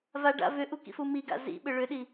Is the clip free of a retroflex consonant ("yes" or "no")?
no